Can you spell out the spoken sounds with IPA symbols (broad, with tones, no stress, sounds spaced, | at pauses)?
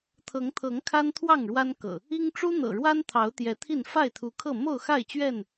t̪ʰ ɤ˨˦ ŋ t̪ʰ ɤ˨˦ ŋ kʰ a˦ n t̪ʰ w ɑ˥˨ ŋ ɻ w a˦ n k ɤ̰˨˩ | i˦ ŋ ʈ͡ʂ u˦ n̪ ɤ̰˨˩ ɻ w a˦ n t̪ʰ ɑ˨˦ ʊ̯ t̪ j ɛ˨˦ t̪ʰ i˥˨ n f a˥˨ ɪ̯ t̪ʰ u˨˦ kʰ ɤ˥˨ m o˥˨ ʊ̯ x a˥˨ ɪ̯ t͡ɕ ɥ ɛ˥˨ n